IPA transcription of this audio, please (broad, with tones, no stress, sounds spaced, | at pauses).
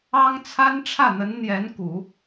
ɑ˥ ŋ t͡sʰ a˥ n ʈ͡ʂʰ ä˥˩ n̪ ə˧˥ n n̪ j ɛ˧˥ n k u˨˩˦